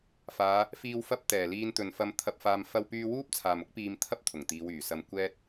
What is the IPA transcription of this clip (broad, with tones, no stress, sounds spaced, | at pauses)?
f aː˨˧ | f iː˨ w f ɐ˧ p̚ t̪ ɛː˨˩ l iː˧ n t̪ ɵ˨ n f ɐ˧ m t̪ʰ ɐ˧ p̚ f aː˧ m f ɐ˥ w p yː˥ w uː˥ p̚ t͡sʰ aː˨ m ʊ˥ k̚ p iː˧ m t̪ʰ ɐ˥ p̚ t̪ʰ ʊ˨˩ ŋ t̪ iː˨˧ w yː˨˩ s ɐ˧ m kʷ ɛː˥ t̚